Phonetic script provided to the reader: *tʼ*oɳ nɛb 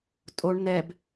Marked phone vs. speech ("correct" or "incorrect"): correct